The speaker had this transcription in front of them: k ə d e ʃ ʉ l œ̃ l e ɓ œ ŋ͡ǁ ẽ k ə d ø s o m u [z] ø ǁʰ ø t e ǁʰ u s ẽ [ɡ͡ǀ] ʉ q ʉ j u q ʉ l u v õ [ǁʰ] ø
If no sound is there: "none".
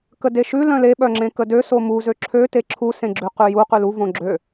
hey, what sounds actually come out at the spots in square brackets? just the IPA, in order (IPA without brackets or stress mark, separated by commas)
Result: z, ɡ͡ǁ, ɡ͡ǁ